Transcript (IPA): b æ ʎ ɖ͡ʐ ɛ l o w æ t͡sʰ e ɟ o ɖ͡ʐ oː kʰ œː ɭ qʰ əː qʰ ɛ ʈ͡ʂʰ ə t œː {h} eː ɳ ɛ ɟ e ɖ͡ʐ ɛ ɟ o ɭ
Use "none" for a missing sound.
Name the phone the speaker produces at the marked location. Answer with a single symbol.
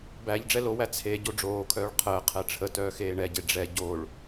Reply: x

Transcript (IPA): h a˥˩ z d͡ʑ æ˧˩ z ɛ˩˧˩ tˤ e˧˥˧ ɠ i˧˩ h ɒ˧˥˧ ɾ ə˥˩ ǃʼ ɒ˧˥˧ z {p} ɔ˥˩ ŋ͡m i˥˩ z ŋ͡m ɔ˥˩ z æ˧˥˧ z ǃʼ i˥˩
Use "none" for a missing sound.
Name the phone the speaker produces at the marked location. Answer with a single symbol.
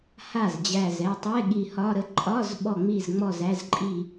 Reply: ɓ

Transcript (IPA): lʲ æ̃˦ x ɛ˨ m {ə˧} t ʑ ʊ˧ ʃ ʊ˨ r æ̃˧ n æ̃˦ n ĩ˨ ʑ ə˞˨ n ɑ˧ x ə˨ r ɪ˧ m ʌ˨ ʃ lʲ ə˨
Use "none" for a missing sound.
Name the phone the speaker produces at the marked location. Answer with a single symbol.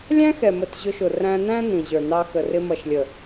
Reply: ə˨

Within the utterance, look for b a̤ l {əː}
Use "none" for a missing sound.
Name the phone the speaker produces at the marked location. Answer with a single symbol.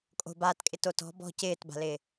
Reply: ɪː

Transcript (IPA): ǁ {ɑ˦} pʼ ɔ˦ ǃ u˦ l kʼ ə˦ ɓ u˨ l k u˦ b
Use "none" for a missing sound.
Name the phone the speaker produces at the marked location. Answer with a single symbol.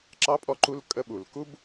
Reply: ɑ˦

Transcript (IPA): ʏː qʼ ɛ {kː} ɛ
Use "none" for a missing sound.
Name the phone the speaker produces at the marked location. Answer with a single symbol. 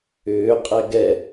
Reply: ɡ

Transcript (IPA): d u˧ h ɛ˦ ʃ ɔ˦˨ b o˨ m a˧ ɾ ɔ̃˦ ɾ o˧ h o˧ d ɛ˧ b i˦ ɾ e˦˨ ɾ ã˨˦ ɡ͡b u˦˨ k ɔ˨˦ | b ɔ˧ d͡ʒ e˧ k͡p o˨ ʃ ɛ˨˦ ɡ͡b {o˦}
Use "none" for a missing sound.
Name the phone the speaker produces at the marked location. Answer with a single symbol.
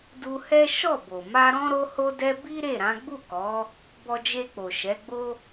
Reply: o˦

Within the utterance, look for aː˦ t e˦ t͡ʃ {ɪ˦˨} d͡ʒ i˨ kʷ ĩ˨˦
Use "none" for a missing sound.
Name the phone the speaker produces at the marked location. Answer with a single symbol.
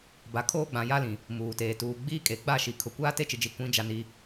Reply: ɪ˨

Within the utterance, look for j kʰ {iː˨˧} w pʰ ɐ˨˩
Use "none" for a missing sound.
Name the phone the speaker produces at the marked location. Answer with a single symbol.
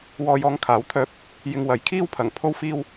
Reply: iː˥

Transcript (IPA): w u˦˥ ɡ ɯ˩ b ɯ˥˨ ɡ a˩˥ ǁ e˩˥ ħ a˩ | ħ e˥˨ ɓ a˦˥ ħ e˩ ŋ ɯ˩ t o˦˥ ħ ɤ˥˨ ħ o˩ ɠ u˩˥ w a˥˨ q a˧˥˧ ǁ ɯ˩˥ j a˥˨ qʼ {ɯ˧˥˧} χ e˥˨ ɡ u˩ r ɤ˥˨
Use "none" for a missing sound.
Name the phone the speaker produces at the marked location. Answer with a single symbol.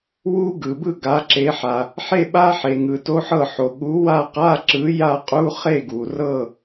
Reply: u˧˥˧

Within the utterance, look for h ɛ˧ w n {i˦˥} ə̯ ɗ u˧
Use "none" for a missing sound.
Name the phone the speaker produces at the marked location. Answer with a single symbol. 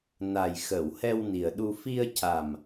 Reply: i˨˩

